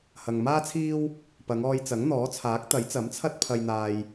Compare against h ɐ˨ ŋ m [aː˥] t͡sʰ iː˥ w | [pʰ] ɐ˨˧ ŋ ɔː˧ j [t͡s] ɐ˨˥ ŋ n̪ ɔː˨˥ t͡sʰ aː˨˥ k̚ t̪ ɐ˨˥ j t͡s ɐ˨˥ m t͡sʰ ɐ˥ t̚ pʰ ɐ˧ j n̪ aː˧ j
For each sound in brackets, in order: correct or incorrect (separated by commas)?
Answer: correct, incorrect, correct